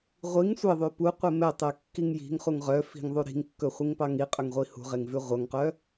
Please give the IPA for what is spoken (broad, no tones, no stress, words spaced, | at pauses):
ʁʷiŋ sʷeðˤʉ puqʷe mɛtˤɛkːiŋ ji̤ŋχuŋ ʁœfi̤ŋðˤu ɾi̤ŋkːɵχʷiŋpɑ ŋiqʼɵŋʁʷi hṳʁeŋvʉ ʁʷœŋqœ